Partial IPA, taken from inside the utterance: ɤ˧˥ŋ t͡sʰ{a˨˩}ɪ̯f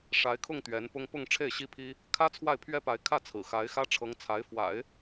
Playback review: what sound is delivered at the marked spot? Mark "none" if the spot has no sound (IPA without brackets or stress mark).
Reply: a˧˥